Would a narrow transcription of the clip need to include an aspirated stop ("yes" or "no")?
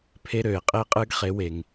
yes